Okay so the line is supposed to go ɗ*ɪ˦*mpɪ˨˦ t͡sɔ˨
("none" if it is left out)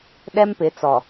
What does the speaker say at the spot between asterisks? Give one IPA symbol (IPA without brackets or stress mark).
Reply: ɛ˦